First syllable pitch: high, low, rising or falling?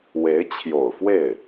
rising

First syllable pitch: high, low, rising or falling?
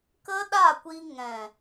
high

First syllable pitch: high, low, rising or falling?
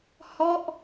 falling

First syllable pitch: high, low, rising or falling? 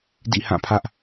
falling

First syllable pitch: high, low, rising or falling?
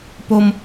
high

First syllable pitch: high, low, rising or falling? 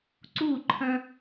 falling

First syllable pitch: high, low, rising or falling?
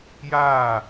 falling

